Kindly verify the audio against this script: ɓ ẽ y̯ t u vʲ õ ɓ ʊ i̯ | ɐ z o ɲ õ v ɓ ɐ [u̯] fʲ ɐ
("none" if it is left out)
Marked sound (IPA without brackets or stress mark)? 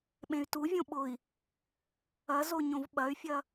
y̯